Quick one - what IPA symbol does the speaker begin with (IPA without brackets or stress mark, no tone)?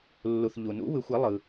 lː